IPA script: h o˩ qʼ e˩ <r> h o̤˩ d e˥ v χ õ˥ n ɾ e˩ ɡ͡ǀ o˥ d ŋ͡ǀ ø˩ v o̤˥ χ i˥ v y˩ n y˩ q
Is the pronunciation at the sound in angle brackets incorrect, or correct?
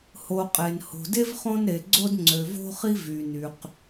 incorrect